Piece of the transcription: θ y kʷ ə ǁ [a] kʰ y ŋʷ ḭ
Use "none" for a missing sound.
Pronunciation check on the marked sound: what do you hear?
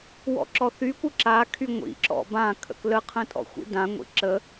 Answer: a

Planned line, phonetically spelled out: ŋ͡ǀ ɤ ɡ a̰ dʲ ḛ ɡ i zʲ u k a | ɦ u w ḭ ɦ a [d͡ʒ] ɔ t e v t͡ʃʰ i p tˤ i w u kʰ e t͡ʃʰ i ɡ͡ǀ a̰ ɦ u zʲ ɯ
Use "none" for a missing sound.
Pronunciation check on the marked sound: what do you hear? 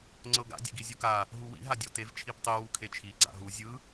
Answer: dʲ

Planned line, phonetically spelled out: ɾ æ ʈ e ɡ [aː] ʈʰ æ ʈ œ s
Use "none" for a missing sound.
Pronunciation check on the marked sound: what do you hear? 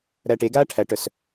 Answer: aː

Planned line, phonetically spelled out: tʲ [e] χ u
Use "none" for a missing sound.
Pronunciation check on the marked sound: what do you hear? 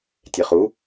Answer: e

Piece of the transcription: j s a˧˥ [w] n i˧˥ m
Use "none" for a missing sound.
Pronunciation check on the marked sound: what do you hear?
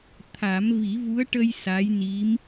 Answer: j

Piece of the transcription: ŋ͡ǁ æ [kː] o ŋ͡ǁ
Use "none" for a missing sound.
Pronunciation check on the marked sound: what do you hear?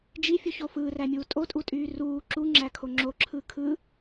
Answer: kʰ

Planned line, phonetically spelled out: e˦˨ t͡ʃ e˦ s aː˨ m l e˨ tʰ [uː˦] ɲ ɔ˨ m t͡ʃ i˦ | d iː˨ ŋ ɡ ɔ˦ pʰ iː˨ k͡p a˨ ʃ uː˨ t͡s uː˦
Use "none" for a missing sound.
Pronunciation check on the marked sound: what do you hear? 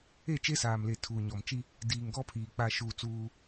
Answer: uː˨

